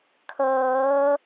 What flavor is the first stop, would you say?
aspirated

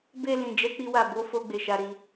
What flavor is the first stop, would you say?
plain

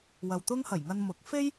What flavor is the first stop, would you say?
plain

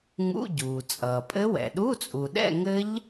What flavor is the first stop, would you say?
plain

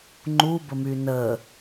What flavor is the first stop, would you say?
click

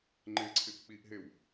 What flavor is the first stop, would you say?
click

